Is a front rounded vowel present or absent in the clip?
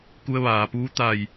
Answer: absent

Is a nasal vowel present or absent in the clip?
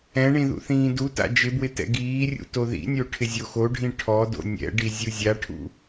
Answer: present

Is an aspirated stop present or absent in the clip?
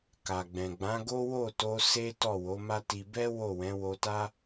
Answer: absent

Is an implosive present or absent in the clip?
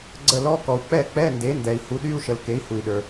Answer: present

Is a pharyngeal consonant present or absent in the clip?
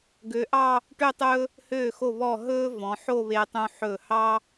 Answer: present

